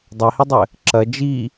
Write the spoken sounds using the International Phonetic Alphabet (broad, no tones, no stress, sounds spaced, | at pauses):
dˤ a h i dˤ ɘ | ǁ ɐ d͡ʒ i